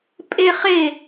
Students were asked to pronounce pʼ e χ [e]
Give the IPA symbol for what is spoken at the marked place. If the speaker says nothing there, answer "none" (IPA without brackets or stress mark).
e